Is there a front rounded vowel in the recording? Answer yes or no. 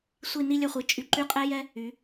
yes